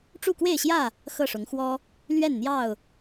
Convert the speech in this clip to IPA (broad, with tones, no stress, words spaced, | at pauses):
ʈ͡ʂu˥˨kwe˥˨ɪ̯ɕjä˥˨ | xɤ˥˨ʂʊ˨˦ŋ xwɔ˦ | lɥɛ˥˨nn̪jɑ˥˨ʊ̯